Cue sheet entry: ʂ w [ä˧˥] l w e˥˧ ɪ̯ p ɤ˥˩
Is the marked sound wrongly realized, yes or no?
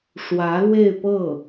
no